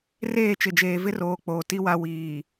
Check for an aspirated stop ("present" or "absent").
absent